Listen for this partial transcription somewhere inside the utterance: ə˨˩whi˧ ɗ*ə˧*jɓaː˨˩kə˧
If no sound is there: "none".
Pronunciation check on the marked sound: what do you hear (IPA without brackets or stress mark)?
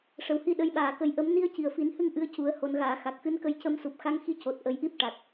ə˧˥